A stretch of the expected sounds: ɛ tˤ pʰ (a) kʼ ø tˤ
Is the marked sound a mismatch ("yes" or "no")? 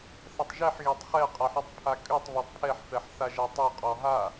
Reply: no